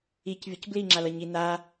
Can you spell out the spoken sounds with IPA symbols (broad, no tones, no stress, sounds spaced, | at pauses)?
i c vʲ ʌ c b l i ŋ͡ǁ a l ʌ ɲ i n a